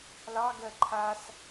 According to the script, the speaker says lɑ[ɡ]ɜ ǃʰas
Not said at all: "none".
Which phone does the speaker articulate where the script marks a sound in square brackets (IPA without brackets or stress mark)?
ɡ